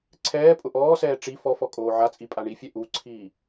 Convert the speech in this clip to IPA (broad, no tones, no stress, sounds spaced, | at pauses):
ǀʰ ɛː pʼ ʊ ʔ ɔː s ɛː ʈ͡ʂ i f ɔ f ɔ kʼ oː ʕ a t͡sʼ i pʼ a ɳ i fʲ ɛ ʔ u ǀʰ iː